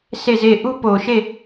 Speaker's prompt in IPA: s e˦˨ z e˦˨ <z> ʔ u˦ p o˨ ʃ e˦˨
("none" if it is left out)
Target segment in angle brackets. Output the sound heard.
none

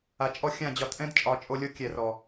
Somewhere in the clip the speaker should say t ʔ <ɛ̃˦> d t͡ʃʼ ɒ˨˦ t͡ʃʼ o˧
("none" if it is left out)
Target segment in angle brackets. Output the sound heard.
ɛ̃˦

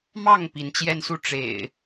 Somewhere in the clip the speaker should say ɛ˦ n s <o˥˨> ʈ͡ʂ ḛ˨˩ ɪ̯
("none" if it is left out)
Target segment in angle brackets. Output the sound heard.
u˥˨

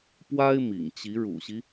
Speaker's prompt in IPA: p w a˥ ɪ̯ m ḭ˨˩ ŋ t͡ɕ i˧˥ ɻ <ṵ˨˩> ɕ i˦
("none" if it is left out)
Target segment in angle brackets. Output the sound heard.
ṵ˨˩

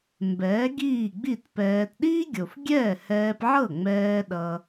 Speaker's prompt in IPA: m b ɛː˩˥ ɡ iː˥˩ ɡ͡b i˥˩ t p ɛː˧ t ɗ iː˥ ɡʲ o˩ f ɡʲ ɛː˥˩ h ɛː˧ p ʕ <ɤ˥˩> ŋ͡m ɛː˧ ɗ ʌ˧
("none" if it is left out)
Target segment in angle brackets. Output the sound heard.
ɤ˥˩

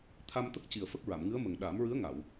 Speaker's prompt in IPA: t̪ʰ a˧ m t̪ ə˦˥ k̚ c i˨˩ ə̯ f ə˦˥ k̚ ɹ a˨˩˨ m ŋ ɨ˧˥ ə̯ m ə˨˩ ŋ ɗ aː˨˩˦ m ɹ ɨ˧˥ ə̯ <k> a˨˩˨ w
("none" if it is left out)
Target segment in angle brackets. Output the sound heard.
ŋ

